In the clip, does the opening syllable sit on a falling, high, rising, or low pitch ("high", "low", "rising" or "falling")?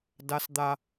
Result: high